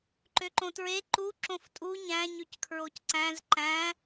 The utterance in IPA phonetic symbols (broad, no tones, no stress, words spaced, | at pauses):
ǃøǃõtɹe ǃu ǁõftʼu ɲæ̃ ɲyckʰɹocǀæ̃z ǃæ̃